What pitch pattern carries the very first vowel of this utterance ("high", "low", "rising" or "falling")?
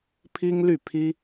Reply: high